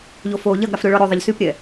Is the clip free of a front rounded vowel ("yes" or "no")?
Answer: no